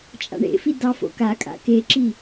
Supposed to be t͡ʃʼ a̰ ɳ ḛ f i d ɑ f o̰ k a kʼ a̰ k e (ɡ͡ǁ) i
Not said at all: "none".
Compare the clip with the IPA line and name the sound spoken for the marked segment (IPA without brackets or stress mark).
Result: ǁ